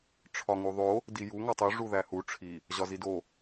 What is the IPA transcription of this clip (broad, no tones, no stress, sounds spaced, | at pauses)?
ʈ͡ʂʰ ɒ ŋ u ðˤ o | d i j u ŋ ɒ tˤ u ʐ u ð æ h u ʈ͡ʂʰ i | ʑ ɒ z i d o